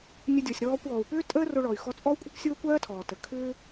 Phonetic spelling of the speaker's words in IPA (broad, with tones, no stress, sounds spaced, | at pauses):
nʲ ə˧ dʲ ɔ˩ sʲ ɾ ɔː˧ kʷ ɔː˩ u̯ p ʏː˥ tʼ əː˥ r o˧ ɭ ɔ˩ y̯ x ɔ˧ t͡sʼ ɔ˥ u̯ kʷʼ ə˥ kʷ sʲ oː˥ kʷ ɜː˥ tʰ ɔː˩ t ə˩ kʰ ʏː˥